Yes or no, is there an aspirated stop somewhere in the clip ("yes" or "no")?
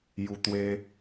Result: no